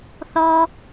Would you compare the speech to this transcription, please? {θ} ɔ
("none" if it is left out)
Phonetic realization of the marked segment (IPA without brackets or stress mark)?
θ